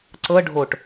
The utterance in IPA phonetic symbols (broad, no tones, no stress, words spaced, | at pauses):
ǀɤ ɖʱoʈ